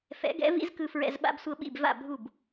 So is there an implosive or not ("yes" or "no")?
yes